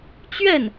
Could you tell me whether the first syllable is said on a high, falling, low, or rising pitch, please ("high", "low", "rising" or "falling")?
falling